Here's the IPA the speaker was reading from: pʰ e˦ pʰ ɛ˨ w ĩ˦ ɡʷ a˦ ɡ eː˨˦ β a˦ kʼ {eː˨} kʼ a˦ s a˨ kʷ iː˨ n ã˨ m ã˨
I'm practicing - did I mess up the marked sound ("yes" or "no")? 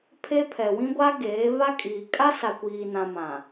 yes